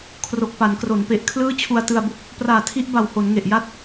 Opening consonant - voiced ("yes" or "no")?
no